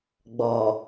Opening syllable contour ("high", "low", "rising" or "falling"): low